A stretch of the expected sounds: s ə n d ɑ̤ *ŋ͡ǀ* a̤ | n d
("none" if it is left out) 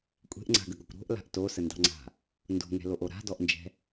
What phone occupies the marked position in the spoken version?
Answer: ŋ͡ǀ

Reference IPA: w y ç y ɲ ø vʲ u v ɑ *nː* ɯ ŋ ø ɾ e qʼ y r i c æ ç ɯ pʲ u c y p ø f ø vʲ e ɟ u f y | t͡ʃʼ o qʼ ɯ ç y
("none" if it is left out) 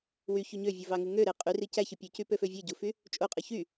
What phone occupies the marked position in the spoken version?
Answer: ŋ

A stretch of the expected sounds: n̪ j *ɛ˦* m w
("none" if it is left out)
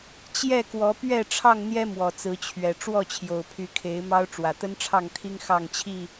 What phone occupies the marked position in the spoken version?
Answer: ɛ˦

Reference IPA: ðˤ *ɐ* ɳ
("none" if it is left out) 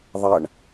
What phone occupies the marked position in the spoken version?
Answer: ɐ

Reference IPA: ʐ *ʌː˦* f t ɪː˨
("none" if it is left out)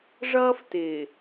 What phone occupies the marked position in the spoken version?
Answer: ʌː˦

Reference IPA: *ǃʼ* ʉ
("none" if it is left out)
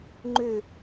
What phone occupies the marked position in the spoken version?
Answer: ŋ͡ǃ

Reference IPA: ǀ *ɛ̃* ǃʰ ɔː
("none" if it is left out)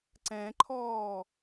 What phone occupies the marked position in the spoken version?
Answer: ɛ̃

